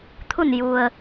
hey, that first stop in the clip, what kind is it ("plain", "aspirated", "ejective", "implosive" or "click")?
aspirated